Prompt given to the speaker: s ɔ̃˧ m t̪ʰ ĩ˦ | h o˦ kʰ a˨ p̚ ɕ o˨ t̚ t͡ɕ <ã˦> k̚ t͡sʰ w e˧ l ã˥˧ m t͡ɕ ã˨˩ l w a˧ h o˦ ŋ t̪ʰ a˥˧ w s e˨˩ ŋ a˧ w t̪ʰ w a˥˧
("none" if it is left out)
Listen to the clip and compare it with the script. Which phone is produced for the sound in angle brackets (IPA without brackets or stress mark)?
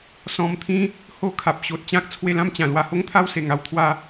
ã˦